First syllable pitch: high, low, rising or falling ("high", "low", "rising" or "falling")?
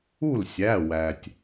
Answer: falling